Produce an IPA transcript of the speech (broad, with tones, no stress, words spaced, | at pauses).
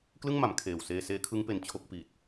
klɯ˥˩ŋma˩˦m kʰeː˨˩w seː˧seː˦˥kʰɯ˦˥ŋpe˨˩n t͡ɕʰo˥˩k̚pi˨˩t̚